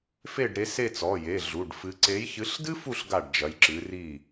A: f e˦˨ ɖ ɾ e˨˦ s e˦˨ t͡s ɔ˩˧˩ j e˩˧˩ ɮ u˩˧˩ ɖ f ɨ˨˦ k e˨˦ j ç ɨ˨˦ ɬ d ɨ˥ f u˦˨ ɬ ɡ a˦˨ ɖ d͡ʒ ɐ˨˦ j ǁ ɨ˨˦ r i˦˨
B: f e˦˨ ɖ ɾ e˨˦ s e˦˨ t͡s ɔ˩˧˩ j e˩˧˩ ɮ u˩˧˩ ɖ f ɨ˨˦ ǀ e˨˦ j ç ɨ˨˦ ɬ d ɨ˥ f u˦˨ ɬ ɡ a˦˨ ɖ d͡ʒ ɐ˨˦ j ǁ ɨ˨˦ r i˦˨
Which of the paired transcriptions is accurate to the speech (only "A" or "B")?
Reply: B